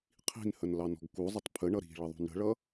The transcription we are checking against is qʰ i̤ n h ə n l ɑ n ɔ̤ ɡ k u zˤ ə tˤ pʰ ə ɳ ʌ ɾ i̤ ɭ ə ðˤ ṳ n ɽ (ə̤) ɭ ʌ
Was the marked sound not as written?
no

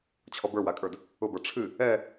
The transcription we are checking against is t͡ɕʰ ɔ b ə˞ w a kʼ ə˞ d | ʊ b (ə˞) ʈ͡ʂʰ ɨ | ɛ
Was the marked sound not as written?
no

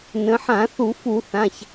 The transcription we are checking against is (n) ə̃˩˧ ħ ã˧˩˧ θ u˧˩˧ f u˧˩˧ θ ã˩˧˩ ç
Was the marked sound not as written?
no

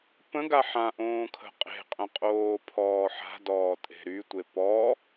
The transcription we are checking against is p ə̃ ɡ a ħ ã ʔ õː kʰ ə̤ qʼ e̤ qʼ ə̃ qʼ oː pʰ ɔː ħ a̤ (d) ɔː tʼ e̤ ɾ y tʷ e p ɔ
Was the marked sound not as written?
no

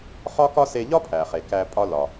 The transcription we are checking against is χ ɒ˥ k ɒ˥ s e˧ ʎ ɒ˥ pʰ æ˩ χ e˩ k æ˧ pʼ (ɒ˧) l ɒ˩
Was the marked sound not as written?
no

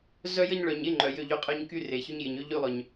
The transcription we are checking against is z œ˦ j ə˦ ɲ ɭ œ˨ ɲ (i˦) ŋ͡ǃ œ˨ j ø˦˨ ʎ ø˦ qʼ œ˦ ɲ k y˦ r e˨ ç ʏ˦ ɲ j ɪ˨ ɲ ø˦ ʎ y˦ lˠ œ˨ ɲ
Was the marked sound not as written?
yes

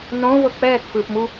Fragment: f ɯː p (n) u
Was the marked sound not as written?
yes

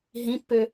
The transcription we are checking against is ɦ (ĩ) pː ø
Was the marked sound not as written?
no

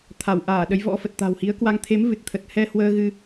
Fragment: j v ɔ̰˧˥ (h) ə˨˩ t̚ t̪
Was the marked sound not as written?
yes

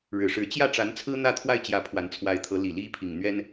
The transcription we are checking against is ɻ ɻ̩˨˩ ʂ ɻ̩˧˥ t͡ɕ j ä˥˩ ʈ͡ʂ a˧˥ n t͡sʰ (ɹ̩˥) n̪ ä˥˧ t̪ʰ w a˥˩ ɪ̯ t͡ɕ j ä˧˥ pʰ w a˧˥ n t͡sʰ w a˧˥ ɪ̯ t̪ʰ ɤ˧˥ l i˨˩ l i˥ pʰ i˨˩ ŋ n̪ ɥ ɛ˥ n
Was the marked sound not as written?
no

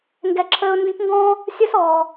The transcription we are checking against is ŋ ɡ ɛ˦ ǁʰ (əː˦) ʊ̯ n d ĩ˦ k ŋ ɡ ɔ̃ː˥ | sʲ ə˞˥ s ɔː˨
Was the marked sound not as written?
no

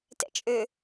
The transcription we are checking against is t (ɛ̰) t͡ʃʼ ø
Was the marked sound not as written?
no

